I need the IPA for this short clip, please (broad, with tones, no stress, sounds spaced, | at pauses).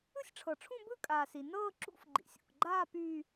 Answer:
ɯ˥˧ sʲ ʈ͡ʂʰ ɤ˩ ʈ͡ʂʰ ũ˥˧ b ɯ˥˧ kʼ aː˩ s i˩ n ɤː˥˧ ǁ ṵ˥˧ f ɡ͡ǃ ḭ˩ sʲ ṵ˩ k ɡ͡ǃ aː˥˧ p yː˥˧